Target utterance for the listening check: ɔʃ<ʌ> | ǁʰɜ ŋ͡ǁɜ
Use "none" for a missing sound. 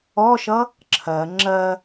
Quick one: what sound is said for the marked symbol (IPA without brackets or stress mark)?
ʌ